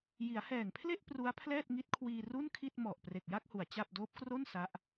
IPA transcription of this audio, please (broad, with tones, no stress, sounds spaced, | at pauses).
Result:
j i˩˦ a̯ h ɛː˨˩ ŋ pʰ l e˥˩ ʔ p r u˦˥ a̯ pʰ l ɛː˥˩ t̚ ŋ i˦˥ t̚ kʰ w iː˧ r u˥˩ n kʰ i˥˩ t̚ m ɔ˨˩ ʔ p r e˨˩ k̚ j a˥˩ k̚ h u˩˦ a̯ t͡ɕ a˥˩ p̚ d oː˦˥ p̚ k r o˥˩ n s a˦˥ ʔ